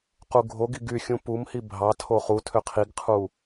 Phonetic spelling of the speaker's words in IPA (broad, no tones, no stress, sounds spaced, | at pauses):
q u ɡʱ o ɡ i ɡ y xʲ ũ p u m h i bʱ ɑ tʰ o χ u tʰ ø qʰ i ɡ qʰ u